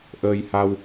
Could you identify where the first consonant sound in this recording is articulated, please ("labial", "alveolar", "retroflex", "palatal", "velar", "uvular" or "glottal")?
glottal